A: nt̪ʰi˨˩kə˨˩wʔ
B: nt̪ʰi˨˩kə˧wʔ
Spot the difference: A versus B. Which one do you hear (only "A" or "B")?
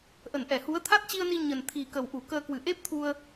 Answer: A